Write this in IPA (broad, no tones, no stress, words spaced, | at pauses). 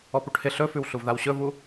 ɔpuʈhɪ ɬɵfʉwɬuv ðawɕɵvu